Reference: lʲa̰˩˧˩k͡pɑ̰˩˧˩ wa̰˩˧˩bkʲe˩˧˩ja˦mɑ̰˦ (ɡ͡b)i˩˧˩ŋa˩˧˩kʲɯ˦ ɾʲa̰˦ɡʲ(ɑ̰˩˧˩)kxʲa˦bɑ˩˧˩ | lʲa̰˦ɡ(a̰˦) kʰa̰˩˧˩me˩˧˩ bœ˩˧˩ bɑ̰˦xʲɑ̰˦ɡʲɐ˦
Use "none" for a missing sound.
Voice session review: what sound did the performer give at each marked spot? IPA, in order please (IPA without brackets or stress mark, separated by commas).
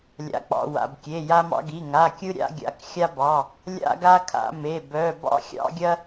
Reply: ɡ, a̰˩˧˩, a˦